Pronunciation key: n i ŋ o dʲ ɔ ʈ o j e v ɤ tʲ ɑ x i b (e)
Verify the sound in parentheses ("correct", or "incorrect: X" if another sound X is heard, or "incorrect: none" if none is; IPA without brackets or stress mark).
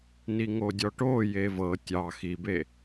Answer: correct